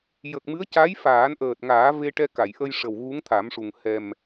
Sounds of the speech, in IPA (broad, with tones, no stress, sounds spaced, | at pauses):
j ə˨˩ k̚ m ɨ˧˥ ə̯ c a˧˥ j f aː˨˩˦ n ʔ əː˨˩ t̚ ŋ aː˨˩˦ v e˧ ʈ ɛ˧ k a˨˩˨ j ʔ ə˧ j ʂ ə˨˩ w ɣ u˧˥ ŋ t̪ʰ a˨˩˦ m ʂ u˨˩ ŋ h ɛ˨˩ m